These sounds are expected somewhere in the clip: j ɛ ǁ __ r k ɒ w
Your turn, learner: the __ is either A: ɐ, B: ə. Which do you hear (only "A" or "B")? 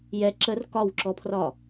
B